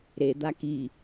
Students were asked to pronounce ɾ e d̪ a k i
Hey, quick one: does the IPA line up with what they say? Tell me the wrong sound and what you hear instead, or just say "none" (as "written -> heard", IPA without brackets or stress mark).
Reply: none